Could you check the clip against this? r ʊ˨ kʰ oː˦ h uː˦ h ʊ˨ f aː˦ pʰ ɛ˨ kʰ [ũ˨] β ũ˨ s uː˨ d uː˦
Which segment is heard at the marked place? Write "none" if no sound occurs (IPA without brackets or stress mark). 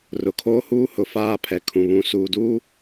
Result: ũ˨